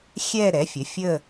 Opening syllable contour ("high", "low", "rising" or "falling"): falling